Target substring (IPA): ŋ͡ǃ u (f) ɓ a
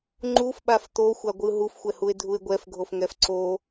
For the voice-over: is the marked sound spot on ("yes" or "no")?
yes